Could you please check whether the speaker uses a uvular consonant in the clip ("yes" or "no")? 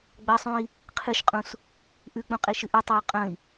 yes